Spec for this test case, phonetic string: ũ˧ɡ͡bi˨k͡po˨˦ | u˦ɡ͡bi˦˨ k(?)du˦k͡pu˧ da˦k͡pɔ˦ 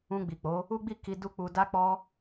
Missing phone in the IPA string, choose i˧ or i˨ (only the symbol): i˧